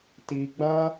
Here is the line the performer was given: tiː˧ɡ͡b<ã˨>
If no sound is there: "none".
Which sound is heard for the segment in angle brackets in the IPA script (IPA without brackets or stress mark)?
ã˦